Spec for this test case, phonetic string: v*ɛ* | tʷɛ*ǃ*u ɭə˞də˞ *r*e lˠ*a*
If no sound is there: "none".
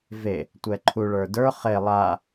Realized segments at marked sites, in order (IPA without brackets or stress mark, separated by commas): e, ǃʰ, χ, a